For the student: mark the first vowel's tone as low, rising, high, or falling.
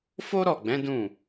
high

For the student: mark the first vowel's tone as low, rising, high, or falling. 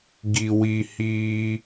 low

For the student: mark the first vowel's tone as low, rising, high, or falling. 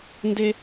high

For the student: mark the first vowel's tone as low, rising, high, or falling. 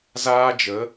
high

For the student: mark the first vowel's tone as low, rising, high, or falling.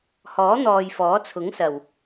rising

